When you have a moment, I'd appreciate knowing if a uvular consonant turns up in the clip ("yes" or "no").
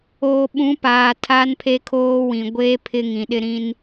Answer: no